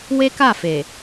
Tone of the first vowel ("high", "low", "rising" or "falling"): high